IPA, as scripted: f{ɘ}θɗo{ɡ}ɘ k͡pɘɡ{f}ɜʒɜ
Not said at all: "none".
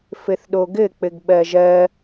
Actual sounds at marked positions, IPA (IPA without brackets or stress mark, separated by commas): ɘ, ɡ, ɓ